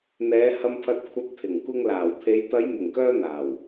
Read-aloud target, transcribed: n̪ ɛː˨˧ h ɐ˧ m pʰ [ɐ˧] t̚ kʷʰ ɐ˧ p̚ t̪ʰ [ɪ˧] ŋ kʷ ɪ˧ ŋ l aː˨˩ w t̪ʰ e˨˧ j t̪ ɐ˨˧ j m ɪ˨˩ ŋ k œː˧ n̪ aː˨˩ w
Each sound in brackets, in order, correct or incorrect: correct, incorrect

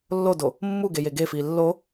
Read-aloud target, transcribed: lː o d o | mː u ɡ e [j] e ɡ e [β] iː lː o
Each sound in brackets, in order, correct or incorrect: correct, incorrect

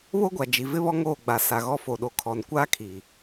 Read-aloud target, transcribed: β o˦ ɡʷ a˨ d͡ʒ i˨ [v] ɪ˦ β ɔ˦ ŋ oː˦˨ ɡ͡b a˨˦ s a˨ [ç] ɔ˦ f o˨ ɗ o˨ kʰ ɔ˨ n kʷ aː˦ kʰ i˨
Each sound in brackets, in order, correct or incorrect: correct, incorrect

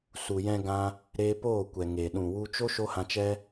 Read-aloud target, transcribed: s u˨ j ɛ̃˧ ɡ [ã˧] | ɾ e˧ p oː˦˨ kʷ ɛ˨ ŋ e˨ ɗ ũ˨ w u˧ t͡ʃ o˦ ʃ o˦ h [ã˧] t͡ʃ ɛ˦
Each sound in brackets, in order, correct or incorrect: correct, correct

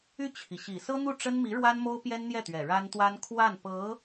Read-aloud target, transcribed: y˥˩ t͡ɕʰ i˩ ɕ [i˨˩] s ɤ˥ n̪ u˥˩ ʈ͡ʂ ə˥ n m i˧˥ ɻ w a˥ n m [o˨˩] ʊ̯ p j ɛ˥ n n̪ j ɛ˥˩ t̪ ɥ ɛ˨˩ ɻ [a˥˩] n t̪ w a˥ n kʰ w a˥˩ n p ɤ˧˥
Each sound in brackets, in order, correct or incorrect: correct, incorrect, incorrect

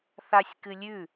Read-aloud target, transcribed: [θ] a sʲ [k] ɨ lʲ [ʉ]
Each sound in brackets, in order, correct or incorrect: correct, correct, correct

